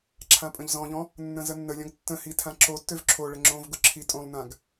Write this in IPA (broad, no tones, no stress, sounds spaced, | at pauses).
ǁʰ ã pʼ ə̃ ʎ z ɔ̃ ʎ ɔ̃ | nː ə̃ z ə nː ə lʲ ɔ̃ ɡ tː ə̃ h i tʰ ã ǁ o tː ø v ǁʰ o ɭ ə ŋ͡ǁ õ v ɡ ʊ ǁʰ i tʼ õ lˠ n ã ɡ